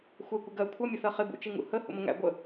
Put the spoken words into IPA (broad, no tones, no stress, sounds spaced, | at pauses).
xʷ ɛ kʷ ɪ ɡ ɜ kʷʰ ʌ mʲ ə θ ɜ χ ɪ b ṵ t͡ʃ i ŋ ṵ h ə h ṵ m ə ŋ æ̰ ɡʷ ə